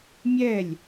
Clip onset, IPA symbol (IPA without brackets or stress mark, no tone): mʲ